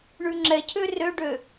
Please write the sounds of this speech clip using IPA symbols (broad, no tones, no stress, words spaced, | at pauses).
ɳʉŋ͡ǁɛcʰø røɖø